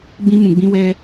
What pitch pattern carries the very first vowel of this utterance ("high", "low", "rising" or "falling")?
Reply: high